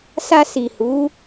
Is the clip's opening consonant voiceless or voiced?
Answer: voiceless